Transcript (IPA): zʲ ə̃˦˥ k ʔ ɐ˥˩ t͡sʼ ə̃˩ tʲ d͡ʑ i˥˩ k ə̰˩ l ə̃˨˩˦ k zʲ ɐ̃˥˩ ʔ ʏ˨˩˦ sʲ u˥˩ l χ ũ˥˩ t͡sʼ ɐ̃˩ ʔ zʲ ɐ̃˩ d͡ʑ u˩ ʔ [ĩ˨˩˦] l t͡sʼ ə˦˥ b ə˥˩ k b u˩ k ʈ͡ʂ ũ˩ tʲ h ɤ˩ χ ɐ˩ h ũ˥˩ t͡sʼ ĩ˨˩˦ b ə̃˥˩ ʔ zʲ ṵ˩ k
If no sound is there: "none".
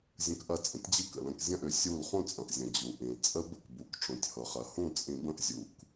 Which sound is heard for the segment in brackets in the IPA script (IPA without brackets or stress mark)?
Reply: ĩ˩